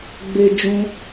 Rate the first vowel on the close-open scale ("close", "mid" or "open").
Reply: mid